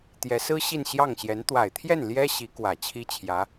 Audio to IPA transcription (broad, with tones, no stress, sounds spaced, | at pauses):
t̪ j ɛ˧˥ s ɹ̩˥ ɕ i˥˧ n ɕ j ɑ˥˩ ŋ ɕ j ɛ˧˥ n t̪ w a˨˩ ɪ̯ t̪ʰ j ɛ˥˩ n l j ɛ˥ ɕ i˧˥ k w ä˨˩ t͡ɕʰ i˥ t͡ɕʰ j ä˧˥